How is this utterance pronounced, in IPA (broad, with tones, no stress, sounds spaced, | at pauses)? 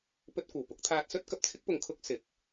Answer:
p ɵ˧ t̚ kʷ ɐ˨˩ w p ʊ˨˥ k̚ t̪ʰ aː˧ t̚ s ɵ˥ t̚ k ɐ˨ p̚ t͡sʰ ɪ˥ k̚ p ʊ˨ ŋ kʰ ʊ˥ k̚ s ɪ˨˥ k̚